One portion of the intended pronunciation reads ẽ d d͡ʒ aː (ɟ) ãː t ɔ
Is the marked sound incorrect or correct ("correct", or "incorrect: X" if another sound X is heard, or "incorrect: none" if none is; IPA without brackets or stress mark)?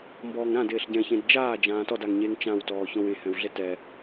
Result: incorrect: d͡ʒ